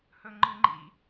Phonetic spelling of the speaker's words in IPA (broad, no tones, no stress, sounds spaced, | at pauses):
h ɵ ŋ͡ǃ ɨ ŋ͡ǃ ḭ